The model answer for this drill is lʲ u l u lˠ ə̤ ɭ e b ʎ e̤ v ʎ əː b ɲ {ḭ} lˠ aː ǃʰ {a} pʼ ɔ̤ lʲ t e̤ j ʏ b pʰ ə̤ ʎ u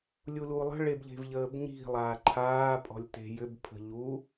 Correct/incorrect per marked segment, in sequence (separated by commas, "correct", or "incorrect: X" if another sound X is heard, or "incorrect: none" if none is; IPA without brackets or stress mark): incorrect: i̤, incorrect: aː